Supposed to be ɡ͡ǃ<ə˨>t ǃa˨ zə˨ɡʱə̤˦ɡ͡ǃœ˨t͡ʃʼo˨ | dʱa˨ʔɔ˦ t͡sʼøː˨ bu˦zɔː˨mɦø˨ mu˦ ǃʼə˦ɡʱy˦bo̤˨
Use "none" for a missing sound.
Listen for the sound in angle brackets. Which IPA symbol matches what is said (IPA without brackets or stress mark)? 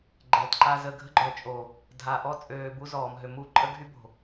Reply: ɛ˨